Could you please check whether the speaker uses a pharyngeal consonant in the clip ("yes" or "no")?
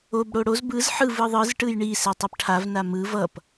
yes